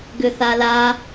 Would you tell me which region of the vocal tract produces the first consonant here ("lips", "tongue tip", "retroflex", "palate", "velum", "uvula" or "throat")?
velum